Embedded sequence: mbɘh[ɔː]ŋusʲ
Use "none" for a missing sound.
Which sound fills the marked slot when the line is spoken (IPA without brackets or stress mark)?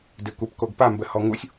ɔ